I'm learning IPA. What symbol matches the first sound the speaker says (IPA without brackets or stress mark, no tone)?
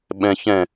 ɓ